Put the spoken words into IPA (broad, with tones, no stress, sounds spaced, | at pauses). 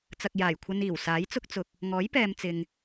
t͡s ɐ˨ k̚ j aː˨˩ j kʷʰ ɐ˧ n iː˨˩ w s aː˨˥ j t͡s ʊ˥ k̚ t͡s ʊ˧ k̚ | ŋ ɔː˨˥ j p ɛː˨ m t͡s ɪ˨ ŋ